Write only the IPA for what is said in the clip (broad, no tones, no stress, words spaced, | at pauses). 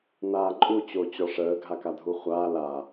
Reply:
naːǃʼu t͡ɕot͡ɕɔʂəː ɡʱakadʱuχʷaː la